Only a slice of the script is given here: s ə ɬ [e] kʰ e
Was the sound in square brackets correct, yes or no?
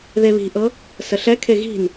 no